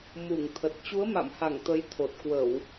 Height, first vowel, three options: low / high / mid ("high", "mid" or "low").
high